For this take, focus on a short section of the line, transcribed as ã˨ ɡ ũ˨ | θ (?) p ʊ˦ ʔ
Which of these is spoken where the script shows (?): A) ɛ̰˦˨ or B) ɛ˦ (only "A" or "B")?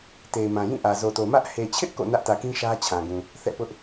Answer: A